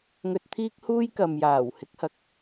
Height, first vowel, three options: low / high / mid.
mid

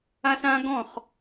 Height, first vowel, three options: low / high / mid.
low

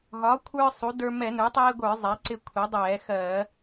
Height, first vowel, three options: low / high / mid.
low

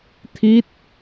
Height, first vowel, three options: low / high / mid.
high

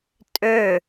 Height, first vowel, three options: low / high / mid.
mid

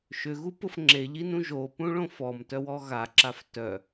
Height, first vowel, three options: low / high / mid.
high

